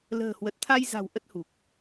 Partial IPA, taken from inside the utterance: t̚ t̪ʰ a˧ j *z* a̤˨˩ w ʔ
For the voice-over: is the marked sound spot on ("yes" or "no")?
yes